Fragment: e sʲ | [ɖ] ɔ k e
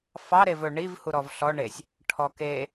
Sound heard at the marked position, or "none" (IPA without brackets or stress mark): ʈʰ